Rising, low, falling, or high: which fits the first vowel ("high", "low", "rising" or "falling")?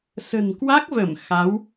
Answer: low